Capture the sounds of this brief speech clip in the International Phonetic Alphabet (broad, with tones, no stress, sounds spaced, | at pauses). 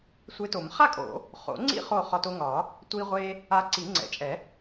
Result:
sʷ e˧ t o˨˩˦ m χ a˥˨ kʼ o̰˨˩˦ | χ o̰˨˩˦ ŋ͡ǀ ḭ˥˨ χ o˥˨ χ ɒ˧ t o˧ ŋ ɒ˨˩˦ | tʷ i˧ ʁʷ e˧ | a˧ ǀ i˨˩˦ ŋ͡ǀ ɛ̰˨˩˦ t͡ʃʼ ɛ˨˩˦